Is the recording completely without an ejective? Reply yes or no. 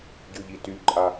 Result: no